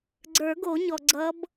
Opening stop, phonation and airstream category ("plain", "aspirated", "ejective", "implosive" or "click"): click